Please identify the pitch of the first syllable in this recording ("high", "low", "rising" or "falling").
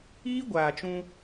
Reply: high